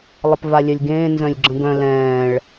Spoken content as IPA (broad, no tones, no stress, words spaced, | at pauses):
lˠəpvalʲœlʲɡẽː nzœ̃lʲɡ͡ǁə̃ɡœ̃ lɛ̃ːɭ